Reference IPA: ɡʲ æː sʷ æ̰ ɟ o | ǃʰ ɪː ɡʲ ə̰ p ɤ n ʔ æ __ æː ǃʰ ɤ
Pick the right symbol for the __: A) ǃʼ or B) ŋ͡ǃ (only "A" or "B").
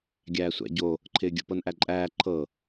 A